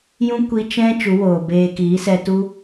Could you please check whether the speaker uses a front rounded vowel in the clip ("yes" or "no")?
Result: no